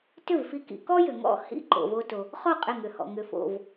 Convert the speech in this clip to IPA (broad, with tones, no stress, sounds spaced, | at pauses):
t ʏ˥˩ v f i˧ k ḭ˧ k ɔ˥ j ʏ˩ ŋ ɔ̰˥˩ h ḭ˥˩ ǃ o̰˩ v o˧ t o˩ | χ ɔ˥˩ qʼ ɪ˧˩ ŋ ʏ˩ h ɔ̰˩ ŋ ʏ˩ f o̰˧˩ v